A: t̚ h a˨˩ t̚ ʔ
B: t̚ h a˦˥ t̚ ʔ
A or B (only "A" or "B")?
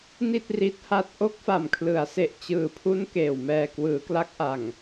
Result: B